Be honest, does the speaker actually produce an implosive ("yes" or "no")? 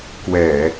no